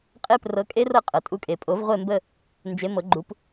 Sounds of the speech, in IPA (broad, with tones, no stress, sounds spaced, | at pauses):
qʼ e˦˥ p r ɤ˨˦ kʼ e˦˥ r ɤ˦˨ qʼ ɤ˩ tʼ u˨˦ kʼ e˩ pʼ o˨˩˦ v ʁʷ e˦˨ m b ə˦˨ | n d͡ʒ e˨˦ m ɤ˨˩˦ ɡ͡ǃ u˨˦ p